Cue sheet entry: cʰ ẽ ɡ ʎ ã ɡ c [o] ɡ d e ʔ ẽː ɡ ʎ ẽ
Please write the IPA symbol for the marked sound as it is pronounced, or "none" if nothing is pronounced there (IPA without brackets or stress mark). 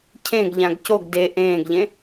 o